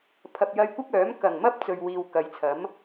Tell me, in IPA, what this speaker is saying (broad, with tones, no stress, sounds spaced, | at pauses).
pʰ ɐ˨ p̚ j ɐ˧ j kʷ ɪ˥ k̚ œː˨˥ m k ɐ˨˩ ŋ m ɐ˥ p̚ t͡s ɵ˨ ɥ w iː˨ w k ɐ˨˧ j t͡sʰ ɐ˨˥ m